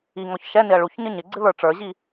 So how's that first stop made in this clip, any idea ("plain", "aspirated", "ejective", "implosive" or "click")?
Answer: click